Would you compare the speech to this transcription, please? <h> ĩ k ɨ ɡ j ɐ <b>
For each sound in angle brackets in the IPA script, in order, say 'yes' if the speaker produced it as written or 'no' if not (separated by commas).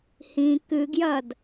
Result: yes, no